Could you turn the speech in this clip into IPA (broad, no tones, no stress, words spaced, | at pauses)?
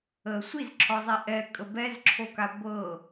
ə sʷizǁʰɔzˤi ʔɛkʼə bɛzǁʰoka ɡʷɤ